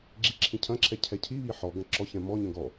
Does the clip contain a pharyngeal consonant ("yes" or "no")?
yes